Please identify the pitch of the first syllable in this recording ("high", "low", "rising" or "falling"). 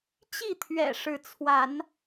falling